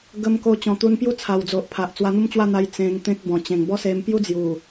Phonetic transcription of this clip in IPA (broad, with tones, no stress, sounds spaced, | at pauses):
ɡ ə˧ m k o˧ t͡ɕ ɔ̃˨˩ t̪ u˧ n p j u˥˧ t͡sʰ a˨˩ w d͡z o˨ ʔ pʰ a˨ ʔ t͡s w a˧ n̪ u˥˧ m t͡ɕ w a˥˧ n̪ a˧ j t͡s ẽ˧ ŋ t̪ ẽ˦ k̚ b ɔ̃˨˩ t͡ɕ ẽ˨˩ ŋ b ɔ˦ s e˧ m p j u˦ d͡z j u˨˩